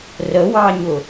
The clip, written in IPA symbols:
r ə w ɑ ɲ ʊ

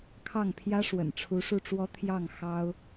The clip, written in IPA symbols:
kʰ ɑ˥˩ ŋ pʰ j ä˥ ʂ w ə̰˨˩ n ʈ͡ʂʰ u˧˥ ʂ u˥˩ ʈ͡ʂ w ɔ˥ t̪ʰ j ɑ˥˩ ŋ x ɑ˥ ʊ̯

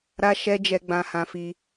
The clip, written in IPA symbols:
ɾ a˦ ʃ ɛ˦ d͡ʒ ɛ˧ ɡ͡b ã˧ h ã˧ f i˧

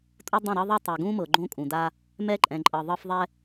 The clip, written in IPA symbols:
tʼ o˦ dˤ õ˦˨ ɾ ɤ˦ ðˤ e˦ tˤ ɛ˨ ɡ ũ˦ m ɤ˨ ɡ͡ǃ õ˦ kʼ ũ˨ d a˦ | m ɛ˦ ǃʼ ɛ̃˨ ǃʼ ɤ˨ ðˤ ɤ˦ f ðˤ ɛ˦

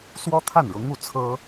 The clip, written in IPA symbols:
s w ɔ˥ t̪ʰ a˥˩ n ɻ ʊ˧˥ ŋ u˥˩ t͡sʰ ɤ˥

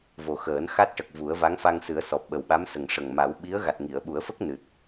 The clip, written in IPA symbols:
v o˨˩ x əː˨˩˦ n x a˦˥ t̚ ʈ ə˨˩ k̚ v u˨˩˦ ə̯ v a˧˥ ŋ f a˧ ŋ s ɨ˨˩˦ ə̯ s ɔ˨˩ p̚ ɓ ə˨˩ w ɓ a˧˥ m s ə˨˩ ŋ ʂ ə˨˩ ŋ m a˨˩˦ w ɓ i˧˥ ə̯ ɣ a˨˩ t̚ ŋ i˨˩˨ ə̯ ɓ u˨˩˦ ə̯ f ə˦˥ k̚ n ɨ˨˩ t̚

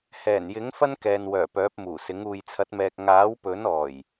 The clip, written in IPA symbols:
h ɛː˨˩ n j ɪ˨˥ ŋ f ɐ˥ n k ɛː˨ n w œː˨˩ p œː˨˥ p̚ m uː˨˩ s ɪ˨˥ ŋ uː˨ j t͡sʰ ɐ˨˥ t̚ m ɛː˨ k̚ ŋ aː˨˥ w p ɵ˨˥ n ɔː˨˩ j

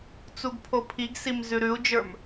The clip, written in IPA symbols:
t͡s u ɡ pʰ o pʰ i ɡ s i m z ʉ ɾ ʉ u̯ d͡ʒ ə˞ m

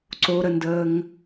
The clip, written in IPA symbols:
ǀ o ɾ ə n d əː ŋ

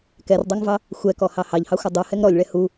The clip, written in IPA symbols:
k ɛ r dˤ ɛ ŋ v ɑ | xʷ ɛ k ɔ h ɑ h ɑ ʎ h ɑ xʷ ʌ dˤ u h ɛ ŋ ɾ ɔ lʲ ɭ ɛ h u

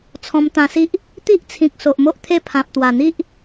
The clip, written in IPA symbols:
t͡sʰ ɔ̃˧ m t̪ ã˧ s i˦ ʔ | t̪ i˦ ʔ t͡sʰ ĩ˨ k̚ s o˨ ʔ m o˦ ʔ t̪ʰ e˥˧ pʰ ã˨ p̚ t̪ w a˨˩ n̪ i˦ ʔ

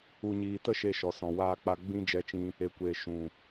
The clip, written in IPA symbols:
u˨ ɲ iː˨ t ə˦ ʃ e˧ ʃ ɔ˨ s ɔ̃˨ w aː˧ k͡p a˧ ɡ͡b ĩ˦ d͡ʒ ɛ˧ t͡ʃ ĩ˧ | e˨˦ kʷ eː˨ ʃ ũ˨

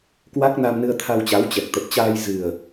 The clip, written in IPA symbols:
k w a˦˥ k̚ n a˧ m n ɨ˧ ə̯ t̪ʰ a˧ w t͡ɕ a˨˦ w t͡ɕ ɛ˨˩ k̚ t̪ ə˨˩ p̚ t͡ɕ aː˧ j z ɨ˨˩ ə̯

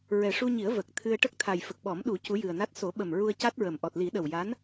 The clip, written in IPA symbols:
ɹ ɛ˨˩ ʂ u˧ ɲ i˨˩˦ ə̯ v ə˨˩ k̚ t̪ʰ ɨ˧ ə̯ ʈ ə˦˥ k̚ t̪ʰ a˨˩ j f ə˨˩ k̚ ɓ ɔ˨˩˦ m ɗ u˨˩˦ c u˧˥ j ɨ˨˩ ə̯ n a˦˥ t̚ s o˨˩˦ ɓ ə˨˩ m ɹ u˧ ə̯ c a˦˥ t̚ ɹ ə˨˩ m ʔ ɔ˨˩ t̚ l i˨˩˦ ɗ ə˨˩ w j a˧˥ n

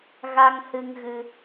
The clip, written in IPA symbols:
ɣ a˧ ŋ h ɨ˧ ŋ ɣ ɨ˧

